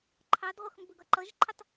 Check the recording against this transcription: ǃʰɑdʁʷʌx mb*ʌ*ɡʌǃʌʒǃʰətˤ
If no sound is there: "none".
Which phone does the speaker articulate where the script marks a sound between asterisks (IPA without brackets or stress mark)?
ə